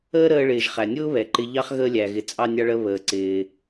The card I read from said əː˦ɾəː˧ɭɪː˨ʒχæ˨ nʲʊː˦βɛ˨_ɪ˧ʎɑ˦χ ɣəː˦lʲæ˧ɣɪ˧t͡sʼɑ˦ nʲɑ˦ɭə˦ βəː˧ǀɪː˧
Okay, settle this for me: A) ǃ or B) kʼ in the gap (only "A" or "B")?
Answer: A